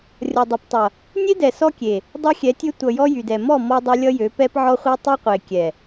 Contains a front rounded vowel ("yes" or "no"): yes